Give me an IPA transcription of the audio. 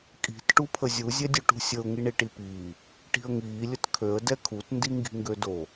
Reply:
kʼ i̤ t ʈ u pʰ ə zʲ u zʲ ɛ dʲ u ʈ ṳ sʲ ə ʊ̯ ŋ i ɳ i ʈ i p iː | ʈ i̤ ə̯ ŋ iː lʲ ə t kʰ ø ə̯ d ɛ kʰ u t n d i ŋ ɡ i̤ ŋ ɡ ø d o

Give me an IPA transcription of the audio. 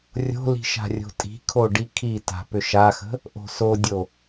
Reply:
rʲ o̤ l i̤ ʃ a̤ rʲ o̤ tʼ i̤ kʰ o ɖ i kʰ i t a̤ p ʏ ʃ a x ə̤ | ʔ o̤ s o dʲ o

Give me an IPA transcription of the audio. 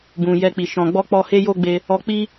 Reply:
b ũ˨ j ɛ˧ k͡p i˨ ʃ ɔ̃˨ ɡ͡b ɔ˧ k͡p ɔ˧ h e˦ j o˦ ɡ͡b e˧ | ɔ˧ k͡p i˦

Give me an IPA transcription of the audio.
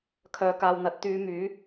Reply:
kʰ œː˨˧ k aː˨ w n̪ ɐ˨˥ t̚ t̪ yː˨˧ m yː˨˥

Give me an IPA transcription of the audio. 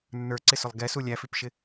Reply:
nː ə˞ ǀ ɪ s ʊ lˠ ɡ ɛ s u lʲ æ f i p ʃ ɪ

